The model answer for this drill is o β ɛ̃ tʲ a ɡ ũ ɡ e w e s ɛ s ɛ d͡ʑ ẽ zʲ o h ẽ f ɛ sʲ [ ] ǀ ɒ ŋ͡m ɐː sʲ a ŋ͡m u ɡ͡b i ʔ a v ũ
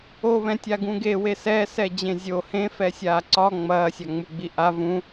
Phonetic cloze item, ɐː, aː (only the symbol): aː